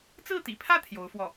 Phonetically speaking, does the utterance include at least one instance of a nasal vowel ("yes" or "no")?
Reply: no